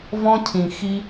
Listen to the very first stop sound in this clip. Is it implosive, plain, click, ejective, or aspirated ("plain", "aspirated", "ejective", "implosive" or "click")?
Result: aspirated